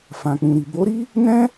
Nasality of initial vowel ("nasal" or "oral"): nasal